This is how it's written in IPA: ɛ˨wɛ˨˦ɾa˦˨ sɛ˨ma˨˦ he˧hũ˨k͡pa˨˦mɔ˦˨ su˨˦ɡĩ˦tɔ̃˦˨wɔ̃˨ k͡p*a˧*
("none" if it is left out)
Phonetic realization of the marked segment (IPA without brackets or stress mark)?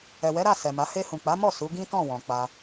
a˧